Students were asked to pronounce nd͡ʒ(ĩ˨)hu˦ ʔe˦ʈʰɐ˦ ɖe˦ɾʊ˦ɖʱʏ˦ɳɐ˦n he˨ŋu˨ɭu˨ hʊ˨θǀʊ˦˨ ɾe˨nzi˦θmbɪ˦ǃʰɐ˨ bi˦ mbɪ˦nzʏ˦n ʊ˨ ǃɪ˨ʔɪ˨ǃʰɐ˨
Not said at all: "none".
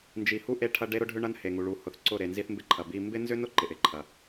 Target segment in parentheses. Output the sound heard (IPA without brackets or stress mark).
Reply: i˨